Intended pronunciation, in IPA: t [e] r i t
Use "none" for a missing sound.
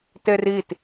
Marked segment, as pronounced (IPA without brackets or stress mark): e